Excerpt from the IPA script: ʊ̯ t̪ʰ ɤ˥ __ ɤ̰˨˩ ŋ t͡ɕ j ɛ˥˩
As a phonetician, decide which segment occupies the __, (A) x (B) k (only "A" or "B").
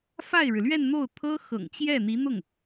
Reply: A